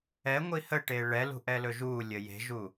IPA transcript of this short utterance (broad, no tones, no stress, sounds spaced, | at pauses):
ɛ ŋʷ i h ə ʈ e ɭ ɛ l ṳ ʔ ɛ l ɵ ʒ uː lʲ ə j e̤ ʒ u